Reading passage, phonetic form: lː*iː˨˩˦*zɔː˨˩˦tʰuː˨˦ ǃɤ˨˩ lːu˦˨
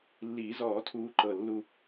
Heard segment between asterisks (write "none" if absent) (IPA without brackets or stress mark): iː˨˩˦